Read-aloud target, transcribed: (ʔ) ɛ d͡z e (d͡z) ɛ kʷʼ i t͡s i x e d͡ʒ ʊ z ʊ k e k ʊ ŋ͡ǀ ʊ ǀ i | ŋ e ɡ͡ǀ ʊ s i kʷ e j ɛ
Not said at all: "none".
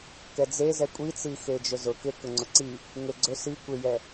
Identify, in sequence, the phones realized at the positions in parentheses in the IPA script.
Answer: k, z

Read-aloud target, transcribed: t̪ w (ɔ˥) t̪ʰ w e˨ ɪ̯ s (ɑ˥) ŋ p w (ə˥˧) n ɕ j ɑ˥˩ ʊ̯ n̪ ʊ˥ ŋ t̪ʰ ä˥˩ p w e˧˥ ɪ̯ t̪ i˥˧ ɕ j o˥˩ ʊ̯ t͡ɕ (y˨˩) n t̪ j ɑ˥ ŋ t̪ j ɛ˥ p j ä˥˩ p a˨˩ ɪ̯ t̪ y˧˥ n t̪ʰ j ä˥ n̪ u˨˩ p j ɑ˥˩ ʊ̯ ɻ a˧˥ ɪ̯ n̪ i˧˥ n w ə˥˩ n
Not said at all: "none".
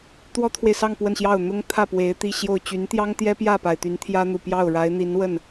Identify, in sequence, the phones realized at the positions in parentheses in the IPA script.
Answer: ɔ˥, ɑ˥˧, ə˥˧, y˧˥

